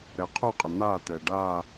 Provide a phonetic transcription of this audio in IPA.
ɾ ɛ qʰ u qʼ ɪ n̪ aː t ɛː ɖ aː

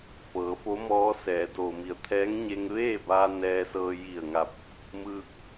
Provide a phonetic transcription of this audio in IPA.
f ɤː˩˧ f o˧˥ m ɔː˧˥ s ɛː˩˧ d oː˩ m i˩˧ ə̯ t̪ʰ ɛː˧˥ ŋ ɲ e˧ ŋ ʋ eː˥˨ b aː˧ n ɛː˧ s ɤː˧ j i˧˩ ə̯ ŋ a˧˩ p̚ | m ɯː˧ k̚

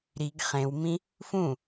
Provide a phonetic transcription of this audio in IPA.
ɾ i ɡ χ ẽ w m ĩ | f ũ

